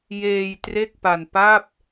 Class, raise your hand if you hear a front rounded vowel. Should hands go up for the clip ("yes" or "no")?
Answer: no